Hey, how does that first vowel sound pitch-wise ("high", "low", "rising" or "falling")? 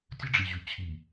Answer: high